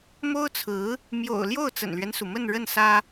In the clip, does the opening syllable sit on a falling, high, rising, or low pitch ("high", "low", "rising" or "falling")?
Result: high